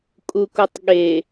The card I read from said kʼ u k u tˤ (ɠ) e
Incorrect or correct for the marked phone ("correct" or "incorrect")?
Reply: correct